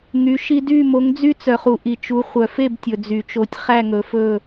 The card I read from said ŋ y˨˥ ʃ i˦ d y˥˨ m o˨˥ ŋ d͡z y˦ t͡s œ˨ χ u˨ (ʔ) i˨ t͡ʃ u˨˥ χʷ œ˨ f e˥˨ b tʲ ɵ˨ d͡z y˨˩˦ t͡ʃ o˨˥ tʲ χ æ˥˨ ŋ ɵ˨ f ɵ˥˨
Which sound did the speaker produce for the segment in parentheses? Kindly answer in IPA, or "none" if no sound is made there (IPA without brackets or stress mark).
ʔ